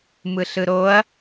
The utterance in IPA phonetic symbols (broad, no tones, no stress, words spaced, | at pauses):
mɯɬɯɾoɐ̯